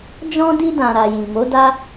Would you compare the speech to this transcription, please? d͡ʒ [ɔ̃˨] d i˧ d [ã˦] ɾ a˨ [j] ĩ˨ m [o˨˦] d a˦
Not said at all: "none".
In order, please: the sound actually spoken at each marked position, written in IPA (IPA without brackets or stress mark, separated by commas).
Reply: ɔ̃˧, ã˨, j, o˨˦